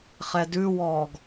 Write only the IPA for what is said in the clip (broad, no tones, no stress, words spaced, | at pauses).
χɛdʉwɔːɡ